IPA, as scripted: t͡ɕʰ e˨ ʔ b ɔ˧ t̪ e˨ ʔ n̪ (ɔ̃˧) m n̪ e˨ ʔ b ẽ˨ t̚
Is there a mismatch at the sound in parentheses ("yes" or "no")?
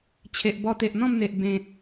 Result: yes